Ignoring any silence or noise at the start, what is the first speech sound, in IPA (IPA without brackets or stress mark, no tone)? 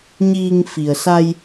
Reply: ɲ